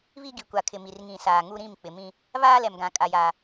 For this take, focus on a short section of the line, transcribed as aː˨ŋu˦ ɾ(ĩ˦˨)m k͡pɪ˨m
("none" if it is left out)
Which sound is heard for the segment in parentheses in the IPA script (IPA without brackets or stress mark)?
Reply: ĩ˦˨